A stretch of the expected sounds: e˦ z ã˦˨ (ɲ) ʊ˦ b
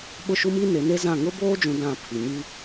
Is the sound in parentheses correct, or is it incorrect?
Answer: incorrect